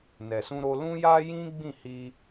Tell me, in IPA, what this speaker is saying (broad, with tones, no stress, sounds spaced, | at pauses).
n ɛ˨ s ũ˧ ɾ o˧ l ũ˦ j a˦ j ĩ˦ ɡ͡b ĩ˦˨ h i˧